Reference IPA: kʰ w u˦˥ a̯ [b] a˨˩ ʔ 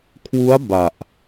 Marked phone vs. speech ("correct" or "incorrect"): correct